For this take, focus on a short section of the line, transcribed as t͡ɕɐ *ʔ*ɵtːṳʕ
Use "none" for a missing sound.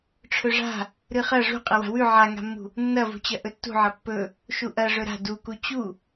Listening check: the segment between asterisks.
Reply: ʔ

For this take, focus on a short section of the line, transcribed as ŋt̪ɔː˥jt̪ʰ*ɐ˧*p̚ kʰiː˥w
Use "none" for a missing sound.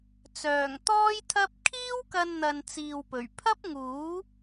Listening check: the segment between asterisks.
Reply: ɐ˥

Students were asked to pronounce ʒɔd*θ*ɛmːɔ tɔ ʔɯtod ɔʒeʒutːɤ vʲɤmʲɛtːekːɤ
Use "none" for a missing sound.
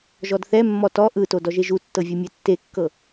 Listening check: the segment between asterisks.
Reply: θ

